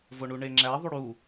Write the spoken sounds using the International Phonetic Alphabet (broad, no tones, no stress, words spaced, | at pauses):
voɳuɳeŋ͡ǁæ ðˤuɽu